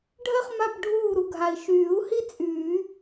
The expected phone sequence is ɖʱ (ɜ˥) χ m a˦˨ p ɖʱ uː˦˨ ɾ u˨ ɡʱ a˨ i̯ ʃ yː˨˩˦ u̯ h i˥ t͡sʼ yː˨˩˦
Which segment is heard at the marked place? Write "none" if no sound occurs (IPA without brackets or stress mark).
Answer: ɜ˥